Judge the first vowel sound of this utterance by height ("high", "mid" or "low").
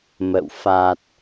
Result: mid